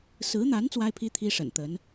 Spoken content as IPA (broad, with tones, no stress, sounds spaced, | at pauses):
s ɹ̩˧˥ n̪ a˧˥ n t͡s w a˥ ɪ̯ pʰ i˥ t̪ʰ i˥ ʂ ə̰˨˩ n t̪ ə˧˥ n